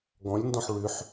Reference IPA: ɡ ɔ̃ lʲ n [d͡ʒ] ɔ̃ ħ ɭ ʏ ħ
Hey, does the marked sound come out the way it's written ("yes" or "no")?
no